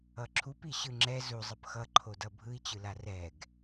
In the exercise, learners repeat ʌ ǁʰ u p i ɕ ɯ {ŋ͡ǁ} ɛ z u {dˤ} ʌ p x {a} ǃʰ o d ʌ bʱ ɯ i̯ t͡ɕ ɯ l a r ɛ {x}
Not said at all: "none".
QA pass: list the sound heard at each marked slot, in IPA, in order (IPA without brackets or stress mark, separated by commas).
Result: ŋ͡ǁ, zˤ, ʌ, ɡ